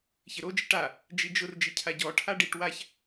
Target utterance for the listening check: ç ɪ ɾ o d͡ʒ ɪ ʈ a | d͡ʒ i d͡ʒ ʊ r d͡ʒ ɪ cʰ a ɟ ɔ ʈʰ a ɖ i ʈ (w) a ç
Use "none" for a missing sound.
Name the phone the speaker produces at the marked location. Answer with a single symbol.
w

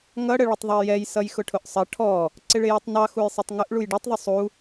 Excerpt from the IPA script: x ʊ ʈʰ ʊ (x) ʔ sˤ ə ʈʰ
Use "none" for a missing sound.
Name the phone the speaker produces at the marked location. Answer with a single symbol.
none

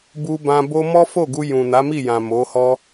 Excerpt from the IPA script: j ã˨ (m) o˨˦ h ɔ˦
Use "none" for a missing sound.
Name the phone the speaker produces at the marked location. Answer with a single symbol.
m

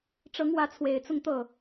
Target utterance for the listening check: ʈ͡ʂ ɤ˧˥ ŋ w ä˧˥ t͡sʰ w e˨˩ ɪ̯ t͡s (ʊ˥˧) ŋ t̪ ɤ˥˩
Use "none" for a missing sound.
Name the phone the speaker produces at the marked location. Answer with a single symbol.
ʊ˥˧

